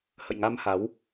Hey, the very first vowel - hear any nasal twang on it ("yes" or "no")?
no